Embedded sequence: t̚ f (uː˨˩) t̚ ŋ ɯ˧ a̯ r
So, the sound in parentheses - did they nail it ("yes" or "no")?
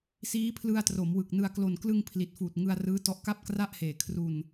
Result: yes